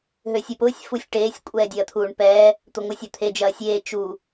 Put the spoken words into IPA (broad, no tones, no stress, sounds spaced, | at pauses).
ɦ ø sʲ ə˞ p ʊː sʲ f u sʲ ʈ eː sʲ kʷʼ ɛː dʲ ɐː t̪ʰ uː ɳ p ɛː | t̪ ʊ ŋʷ ə˞ sʲ ə˞ t̪ʰ e d͡ʒ ɐː sʲ eː t͡ʃ u